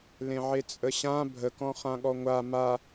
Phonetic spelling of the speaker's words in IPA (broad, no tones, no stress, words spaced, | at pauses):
lẽʕet͡sʼəɕã bʱəkɔ̃ χãɠɔŋʷa ma